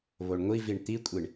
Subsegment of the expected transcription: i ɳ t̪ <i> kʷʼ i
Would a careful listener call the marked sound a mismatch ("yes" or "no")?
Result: no